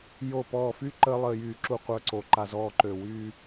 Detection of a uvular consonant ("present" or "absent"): present